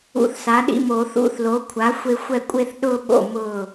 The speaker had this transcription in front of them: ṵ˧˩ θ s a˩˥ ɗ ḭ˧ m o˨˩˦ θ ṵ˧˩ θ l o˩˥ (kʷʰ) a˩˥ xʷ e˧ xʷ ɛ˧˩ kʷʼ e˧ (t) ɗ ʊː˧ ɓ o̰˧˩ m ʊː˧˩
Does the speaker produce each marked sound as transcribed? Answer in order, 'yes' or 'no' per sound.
yes, no

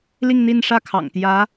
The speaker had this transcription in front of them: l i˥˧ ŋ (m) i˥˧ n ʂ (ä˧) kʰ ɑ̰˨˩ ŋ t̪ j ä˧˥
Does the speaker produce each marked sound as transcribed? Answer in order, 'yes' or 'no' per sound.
no, no

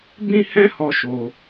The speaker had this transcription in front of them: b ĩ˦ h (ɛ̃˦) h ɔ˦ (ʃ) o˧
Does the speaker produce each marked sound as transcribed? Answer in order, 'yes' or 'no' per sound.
yes, yes

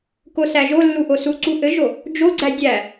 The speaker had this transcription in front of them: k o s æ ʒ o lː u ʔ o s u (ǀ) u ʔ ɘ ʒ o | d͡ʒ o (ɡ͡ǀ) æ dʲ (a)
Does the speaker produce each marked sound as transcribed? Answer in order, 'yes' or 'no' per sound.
yes, yes, no

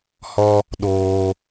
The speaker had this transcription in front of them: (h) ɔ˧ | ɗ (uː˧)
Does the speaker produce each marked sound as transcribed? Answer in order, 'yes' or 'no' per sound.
yes, no

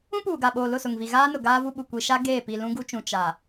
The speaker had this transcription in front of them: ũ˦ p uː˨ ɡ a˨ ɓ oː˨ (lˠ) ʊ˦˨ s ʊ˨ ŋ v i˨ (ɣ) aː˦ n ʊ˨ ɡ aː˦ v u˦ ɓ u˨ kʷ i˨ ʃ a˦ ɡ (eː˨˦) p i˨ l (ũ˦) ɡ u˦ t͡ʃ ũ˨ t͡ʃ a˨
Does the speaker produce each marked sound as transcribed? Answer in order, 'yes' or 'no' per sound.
no, yes, no, yes

